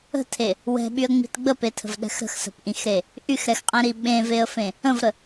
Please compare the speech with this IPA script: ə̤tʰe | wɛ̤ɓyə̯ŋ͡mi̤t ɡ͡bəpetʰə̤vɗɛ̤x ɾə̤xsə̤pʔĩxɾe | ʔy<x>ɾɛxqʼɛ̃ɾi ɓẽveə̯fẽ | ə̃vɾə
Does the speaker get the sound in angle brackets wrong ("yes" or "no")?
no